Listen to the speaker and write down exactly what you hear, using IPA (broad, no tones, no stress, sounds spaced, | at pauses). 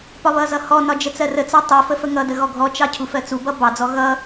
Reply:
p ɒ β ʌ z ʌ h ɔ n ɒ d͡ʒ ə t͡s ɜ r ə t͡s ɑ tˤ ɜ f ə f ə ŋ ʌ d ə ɣ ɔ ɡʱ ɔ t͡ʃ ɑ cʰ u f ɜ t͡s u b ʌ b ɑ d͡z ɔ ɣ ʌ